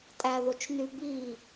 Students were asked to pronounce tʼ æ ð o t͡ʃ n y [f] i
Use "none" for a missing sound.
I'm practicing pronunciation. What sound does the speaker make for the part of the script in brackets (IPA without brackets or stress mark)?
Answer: b